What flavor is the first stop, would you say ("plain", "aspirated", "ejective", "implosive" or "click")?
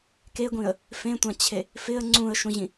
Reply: plain